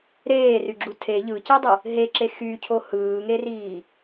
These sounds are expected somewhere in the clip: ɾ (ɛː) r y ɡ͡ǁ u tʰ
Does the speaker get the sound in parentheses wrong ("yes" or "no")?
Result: yes